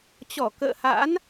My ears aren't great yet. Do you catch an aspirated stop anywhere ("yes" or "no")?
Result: no